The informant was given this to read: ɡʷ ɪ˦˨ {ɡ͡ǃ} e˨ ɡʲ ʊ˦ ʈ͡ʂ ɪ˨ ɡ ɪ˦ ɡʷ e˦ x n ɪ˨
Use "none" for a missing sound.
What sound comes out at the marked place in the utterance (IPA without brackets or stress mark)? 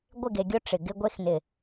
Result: ɡ